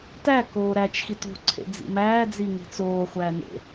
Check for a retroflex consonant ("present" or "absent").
absent